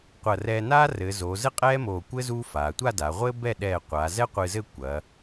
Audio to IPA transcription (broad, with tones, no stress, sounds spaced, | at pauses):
qʷ ɐ˧˩ r ɛː˧ n aː˥ r ɘː˩˧ z oː˩˧ z ɘ˥ qʼ ɛː˥ m oː˧˩ kʷ ɘ˥ z u˥ f aː˩˧ tʷ a˥˧ d a˩˧ ʁʷ ɘː˥ b ɛ˥˧ ɗ ɛː˧˩ qʷ aː˩˧ z ɛ˥ qʷ ɨ˧ z ɘ˥˧ kʷ ɐː˩˧